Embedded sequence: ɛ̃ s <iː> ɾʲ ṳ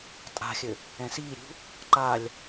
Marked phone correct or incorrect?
correct